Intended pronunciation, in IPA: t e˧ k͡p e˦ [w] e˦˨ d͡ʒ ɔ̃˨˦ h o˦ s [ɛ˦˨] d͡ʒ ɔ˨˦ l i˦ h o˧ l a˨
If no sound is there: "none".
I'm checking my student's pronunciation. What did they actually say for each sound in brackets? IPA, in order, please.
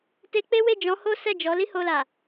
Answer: w, ɛ˦˨

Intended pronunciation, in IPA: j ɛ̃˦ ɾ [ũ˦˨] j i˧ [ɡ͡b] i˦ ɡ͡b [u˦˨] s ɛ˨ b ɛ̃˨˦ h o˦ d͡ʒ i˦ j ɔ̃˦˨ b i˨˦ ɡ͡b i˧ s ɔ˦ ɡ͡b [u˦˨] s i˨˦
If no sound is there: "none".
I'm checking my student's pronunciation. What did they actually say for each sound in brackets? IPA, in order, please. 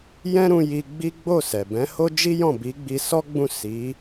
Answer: ũ˧, ɡ͡b, o˦˨, ũ˦˨

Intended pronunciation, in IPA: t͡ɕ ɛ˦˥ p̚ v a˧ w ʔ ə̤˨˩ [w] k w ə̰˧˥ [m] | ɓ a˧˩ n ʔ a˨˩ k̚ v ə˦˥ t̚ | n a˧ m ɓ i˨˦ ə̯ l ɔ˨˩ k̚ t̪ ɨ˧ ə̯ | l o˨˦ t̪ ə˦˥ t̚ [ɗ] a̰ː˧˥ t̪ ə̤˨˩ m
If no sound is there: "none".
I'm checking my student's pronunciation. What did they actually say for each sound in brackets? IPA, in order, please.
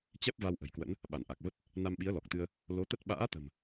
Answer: j, n, ɓ

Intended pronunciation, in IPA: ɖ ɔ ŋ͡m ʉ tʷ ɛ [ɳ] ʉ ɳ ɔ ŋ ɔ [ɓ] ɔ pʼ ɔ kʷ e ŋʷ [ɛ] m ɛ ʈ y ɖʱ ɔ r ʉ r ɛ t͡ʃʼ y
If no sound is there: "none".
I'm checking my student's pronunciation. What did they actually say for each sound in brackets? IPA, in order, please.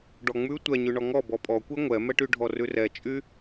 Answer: ɲ, b, ɛ

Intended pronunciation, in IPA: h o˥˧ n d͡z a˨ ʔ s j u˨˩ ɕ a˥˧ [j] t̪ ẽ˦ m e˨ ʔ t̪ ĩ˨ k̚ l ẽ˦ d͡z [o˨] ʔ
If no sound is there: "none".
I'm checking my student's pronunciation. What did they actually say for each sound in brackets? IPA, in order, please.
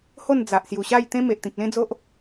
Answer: j, o˦

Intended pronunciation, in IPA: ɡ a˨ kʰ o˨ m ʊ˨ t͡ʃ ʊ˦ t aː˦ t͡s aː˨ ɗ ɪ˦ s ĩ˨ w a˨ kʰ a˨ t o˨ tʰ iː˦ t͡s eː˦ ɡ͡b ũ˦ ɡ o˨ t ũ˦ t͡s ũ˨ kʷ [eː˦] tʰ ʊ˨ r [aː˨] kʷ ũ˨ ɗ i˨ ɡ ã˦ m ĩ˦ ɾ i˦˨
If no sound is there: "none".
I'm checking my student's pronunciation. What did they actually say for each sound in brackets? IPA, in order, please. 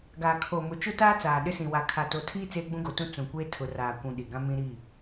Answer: eː˦, aː˨

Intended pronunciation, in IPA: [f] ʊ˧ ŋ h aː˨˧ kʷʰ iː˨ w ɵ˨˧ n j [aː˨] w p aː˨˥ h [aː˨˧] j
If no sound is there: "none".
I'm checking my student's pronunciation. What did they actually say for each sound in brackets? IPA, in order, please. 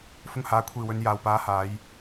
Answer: f, aː˨, aː˨˧

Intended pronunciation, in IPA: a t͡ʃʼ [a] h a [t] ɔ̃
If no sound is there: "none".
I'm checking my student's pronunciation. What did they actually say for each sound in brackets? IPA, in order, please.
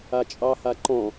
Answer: ɑ, ǃ

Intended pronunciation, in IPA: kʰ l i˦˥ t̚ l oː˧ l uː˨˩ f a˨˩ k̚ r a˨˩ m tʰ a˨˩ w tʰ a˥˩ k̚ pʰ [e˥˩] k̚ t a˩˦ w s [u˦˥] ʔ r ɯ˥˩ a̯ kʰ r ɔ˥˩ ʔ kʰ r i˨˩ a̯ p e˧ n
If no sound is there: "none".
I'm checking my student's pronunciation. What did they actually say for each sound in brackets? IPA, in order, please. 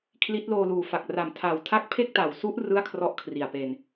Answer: e˥˩, u˦˥

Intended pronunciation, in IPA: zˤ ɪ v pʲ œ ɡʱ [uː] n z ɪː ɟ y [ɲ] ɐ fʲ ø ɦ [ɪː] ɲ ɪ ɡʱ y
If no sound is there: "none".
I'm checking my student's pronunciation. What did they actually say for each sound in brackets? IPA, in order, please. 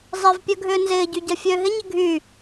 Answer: ʏː, ɟ, ɪ

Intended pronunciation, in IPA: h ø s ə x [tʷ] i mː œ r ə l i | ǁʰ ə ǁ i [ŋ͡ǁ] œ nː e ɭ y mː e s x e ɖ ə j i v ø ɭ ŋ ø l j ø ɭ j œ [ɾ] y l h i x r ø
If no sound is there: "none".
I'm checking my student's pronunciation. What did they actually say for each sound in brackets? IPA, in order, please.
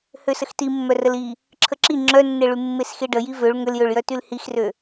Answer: t, ŋ͡ǁ, t

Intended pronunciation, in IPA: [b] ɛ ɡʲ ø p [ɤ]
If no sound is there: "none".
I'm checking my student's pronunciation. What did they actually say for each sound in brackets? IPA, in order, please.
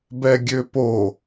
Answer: b, o

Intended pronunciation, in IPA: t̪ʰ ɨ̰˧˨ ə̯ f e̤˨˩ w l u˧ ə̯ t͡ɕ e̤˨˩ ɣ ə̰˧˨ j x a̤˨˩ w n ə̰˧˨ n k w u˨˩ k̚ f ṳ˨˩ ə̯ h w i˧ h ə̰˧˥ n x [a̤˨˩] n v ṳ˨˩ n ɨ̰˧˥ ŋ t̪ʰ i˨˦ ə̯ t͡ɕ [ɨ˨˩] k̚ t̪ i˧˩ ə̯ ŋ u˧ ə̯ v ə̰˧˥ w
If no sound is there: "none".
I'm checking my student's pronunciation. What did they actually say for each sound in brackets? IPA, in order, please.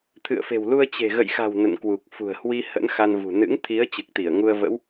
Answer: a˧, ɨ˨˩

